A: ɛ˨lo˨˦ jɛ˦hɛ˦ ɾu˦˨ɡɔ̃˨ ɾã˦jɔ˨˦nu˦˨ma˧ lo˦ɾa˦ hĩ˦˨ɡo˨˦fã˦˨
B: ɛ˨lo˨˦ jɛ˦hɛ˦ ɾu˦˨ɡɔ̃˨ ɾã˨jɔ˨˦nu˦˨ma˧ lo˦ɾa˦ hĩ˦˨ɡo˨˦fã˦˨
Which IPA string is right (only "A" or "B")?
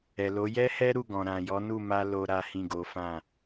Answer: B